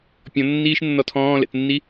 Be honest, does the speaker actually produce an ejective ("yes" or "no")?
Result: no